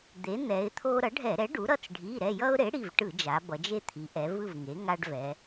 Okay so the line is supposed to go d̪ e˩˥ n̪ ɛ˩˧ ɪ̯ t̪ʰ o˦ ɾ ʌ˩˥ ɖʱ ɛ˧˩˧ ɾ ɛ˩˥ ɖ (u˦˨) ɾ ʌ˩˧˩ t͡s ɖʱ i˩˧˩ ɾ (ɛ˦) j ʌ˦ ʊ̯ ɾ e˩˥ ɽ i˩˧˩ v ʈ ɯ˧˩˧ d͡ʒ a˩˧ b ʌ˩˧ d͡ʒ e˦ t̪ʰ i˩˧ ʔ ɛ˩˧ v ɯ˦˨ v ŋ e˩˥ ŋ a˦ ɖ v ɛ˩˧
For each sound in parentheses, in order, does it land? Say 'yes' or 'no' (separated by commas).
no, no